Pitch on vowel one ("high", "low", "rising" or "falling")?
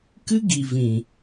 high